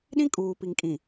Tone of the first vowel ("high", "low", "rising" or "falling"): high